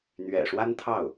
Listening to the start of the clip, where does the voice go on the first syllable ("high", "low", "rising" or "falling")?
low